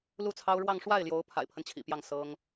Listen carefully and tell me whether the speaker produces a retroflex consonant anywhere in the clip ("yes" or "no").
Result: yes